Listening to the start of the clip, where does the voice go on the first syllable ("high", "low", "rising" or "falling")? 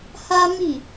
high